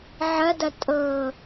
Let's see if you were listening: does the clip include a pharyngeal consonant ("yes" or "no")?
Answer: yes